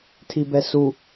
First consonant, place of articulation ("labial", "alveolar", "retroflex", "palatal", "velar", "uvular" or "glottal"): alveolar